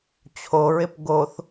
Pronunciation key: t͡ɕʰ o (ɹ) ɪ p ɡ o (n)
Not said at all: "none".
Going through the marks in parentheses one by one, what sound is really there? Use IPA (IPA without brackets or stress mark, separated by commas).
ɹ, θ